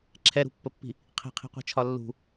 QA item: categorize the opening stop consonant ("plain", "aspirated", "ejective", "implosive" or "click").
click